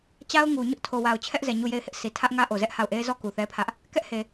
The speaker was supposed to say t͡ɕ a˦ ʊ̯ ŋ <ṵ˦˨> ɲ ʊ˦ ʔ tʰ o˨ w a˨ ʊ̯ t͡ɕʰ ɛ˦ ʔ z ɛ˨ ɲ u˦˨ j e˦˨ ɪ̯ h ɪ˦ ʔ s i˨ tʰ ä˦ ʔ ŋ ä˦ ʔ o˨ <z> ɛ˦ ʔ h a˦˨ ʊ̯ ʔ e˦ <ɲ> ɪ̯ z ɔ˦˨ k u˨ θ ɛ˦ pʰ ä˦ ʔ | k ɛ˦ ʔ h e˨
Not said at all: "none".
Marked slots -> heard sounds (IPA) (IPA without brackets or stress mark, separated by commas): u˨, z, none